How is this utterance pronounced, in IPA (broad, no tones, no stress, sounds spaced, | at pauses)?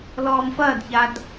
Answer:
l ɔː m f ɐː d ç a d